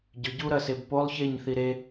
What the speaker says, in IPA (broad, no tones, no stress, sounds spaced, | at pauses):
ɟ ʏ ɟ u ɾ ɐ s e b p o lˠ ç e ɲ θ i ɾ e